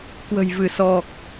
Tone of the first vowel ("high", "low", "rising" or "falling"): low